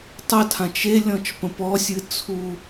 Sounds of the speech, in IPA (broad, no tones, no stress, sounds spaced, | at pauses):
tˤ ə tʰ ã t͡ʃ e lʲ ɔ̃ t͡ʃ p ə̃ p ɔ sʲ ɨ t͡sʰ u